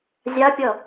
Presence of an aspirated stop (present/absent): absent